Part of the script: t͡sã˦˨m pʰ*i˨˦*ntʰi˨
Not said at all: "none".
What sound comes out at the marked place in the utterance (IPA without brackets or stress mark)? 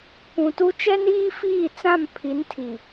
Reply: i˨˦